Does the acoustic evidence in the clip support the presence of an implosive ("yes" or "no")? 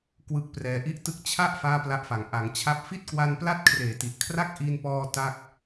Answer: no